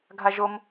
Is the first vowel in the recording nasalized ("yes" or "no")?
no